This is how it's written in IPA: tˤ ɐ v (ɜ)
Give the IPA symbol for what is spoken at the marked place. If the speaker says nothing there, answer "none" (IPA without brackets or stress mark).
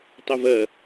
ɜ